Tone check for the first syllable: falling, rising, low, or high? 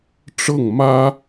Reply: falling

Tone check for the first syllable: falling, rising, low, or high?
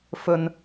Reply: low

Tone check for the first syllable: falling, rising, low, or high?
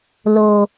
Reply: low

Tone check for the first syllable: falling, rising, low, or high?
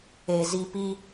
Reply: low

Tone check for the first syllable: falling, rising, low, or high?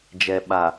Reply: low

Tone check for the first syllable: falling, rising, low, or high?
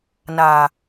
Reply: low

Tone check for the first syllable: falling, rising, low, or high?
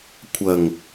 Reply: low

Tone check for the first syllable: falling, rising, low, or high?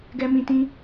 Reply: high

